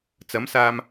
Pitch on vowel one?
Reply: rising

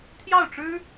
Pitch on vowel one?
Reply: falling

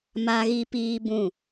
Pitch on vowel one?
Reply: high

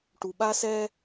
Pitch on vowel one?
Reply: low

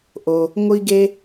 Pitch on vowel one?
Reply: low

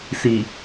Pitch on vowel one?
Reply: low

